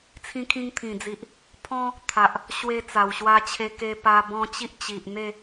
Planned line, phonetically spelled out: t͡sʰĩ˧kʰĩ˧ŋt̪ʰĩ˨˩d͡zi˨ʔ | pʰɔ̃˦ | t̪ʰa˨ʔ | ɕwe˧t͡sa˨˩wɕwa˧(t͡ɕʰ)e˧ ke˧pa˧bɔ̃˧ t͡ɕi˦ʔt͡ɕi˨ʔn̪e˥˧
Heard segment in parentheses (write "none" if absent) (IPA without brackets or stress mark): t͡ɕʰ